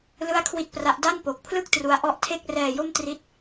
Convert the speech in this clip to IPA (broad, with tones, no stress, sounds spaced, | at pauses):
l ɯ˥˩ a̯ kʰ w i˥˩ t̚ p r a˦˥ ʔ d a˥˩ n p o˨˩ k̚ pʰ l ɯ˥˩ k̚ t r u˦˥ a̯ ʔ ɔ˥˩ ʔ tʰ e˥˩ k̚ r ɛː˧ j o˥˩ m t r i˥˩ t̚